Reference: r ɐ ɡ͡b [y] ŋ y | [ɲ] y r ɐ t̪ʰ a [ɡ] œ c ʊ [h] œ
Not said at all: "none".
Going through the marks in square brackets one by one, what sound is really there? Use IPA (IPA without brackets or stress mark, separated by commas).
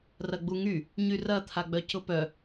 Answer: u, ɲ, ɡ͡b, p